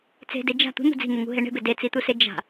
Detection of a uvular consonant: absent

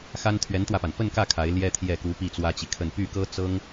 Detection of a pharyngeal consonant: absent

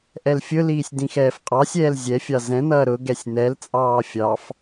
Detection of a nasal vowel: present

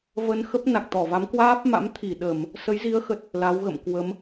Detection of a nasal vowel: absent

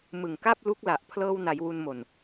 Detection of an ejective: absent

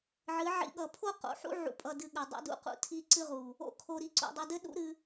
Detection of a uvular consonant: present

